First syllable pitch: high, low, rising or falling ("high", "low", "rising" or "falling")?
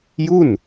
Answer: falling